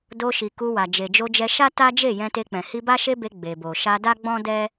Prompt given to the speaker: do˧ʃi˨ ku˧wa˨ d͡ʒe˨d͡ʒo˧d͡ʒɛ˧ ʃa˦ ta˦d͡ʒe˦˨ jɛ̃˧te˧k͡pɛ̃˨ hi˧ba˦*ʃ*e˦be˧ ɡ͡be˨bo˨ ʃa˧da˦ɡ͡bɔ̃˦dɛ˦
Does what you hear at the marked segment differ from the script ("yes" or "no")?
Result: no